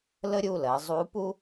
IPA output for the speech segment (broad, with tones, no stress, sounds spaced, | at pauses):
l ə˦ ɾʲ u˩˧˩ l ɜ˩˧ zˤ u˨˥ p u˦